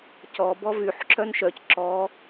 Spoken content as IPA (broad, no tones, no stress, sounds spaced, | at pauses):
c ɔ b ɔ v y ħ ǁ œ n ʃ œ c ǁ ɔ